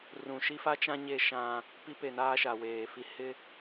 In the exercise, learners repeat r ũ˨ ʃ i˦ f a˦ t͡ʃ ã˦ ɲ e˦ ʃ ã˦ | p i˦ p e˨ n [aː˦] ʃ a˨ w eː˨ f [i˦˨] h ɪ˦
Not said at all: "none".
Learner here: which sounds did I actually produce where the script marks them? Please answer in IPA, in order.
aː˦, i˦

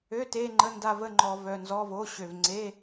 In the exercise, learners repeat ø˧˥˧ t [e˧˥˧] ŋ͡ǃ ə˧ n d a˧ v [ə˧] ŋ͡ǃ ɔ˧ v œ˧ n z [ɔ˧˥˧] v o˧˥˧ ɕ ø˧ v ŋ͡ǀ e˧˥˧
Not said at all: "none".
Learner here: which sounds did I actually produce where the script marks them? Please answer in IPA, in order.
e˧˥˧, ə˧˥˧, ɔ˧˥˧

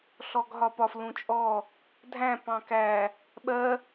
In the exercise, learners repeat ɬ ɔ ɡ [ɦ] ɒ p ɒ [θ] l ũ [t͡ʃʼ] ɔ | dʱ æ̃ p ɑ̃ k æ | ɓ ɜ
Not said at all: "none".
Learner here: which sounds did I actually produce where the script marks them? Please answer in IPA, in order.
ɦ, f, t͡ʃʼ

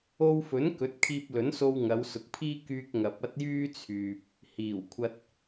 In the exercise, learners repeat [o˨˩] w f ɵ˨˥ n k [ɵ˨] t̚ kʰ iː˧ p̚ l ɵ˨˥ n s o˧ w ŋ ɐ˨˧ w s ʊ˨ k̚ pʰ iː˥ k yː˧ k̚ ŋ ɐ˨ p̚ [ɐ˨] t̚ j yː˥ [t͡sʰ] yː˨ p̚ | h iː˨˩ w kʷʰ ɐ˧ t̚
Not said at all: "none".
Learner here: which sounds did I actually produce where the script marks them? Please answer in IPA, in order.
o˧, ɵ˨˥, ɐ˥, t͡sʰ

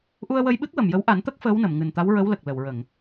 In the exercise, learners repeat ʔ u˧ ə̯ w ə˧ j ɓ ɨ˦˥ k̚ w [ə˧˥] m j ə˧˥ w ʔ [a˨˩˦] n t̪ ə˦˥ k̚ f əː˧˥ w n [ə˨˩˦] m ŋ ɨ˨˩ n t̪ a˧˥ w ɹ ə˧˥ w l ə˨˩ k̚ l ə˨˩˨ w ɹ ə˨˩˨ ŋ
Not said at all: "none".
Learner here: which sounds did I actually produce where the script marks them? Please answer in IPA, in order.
ə˨˩, a˨˩˦, ə˨˩˨

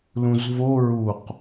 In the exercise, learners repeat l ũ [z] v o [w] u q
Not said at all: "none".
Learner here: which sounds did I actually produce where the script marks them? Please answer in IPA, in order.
z, ɹ

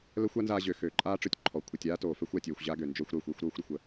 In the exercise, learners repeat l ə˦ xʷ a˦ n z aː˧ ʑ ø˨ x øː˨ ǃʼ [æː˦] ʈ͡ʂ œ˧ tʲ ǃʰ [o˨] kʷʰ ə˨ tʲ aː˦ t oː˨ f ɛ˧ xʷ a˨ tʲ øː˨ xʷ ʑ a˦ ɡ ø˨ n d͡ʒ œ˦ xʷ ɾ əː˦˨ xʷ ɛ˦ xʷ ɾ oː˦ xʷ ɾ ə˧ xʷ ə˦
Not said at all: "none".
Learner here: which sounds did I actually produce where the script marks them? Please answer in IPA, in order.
aː˦, ɔ˨

